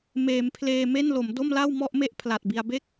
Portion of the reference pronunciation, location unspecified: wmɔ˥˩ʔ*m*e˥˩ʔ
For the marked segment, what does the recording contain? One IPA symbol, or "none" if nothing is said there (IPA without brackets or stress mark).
m